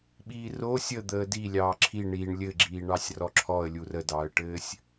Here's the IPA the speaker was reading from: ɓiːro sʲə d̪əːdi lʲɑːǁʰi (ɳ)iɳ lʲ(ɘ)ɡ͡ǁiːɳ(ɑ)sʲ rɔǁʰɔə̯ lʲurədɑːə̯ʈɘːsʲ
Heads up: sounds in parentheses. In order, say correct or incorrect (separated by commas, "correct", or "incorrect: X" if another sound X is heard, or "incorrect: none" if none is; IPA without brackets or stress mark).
correct, correct, correct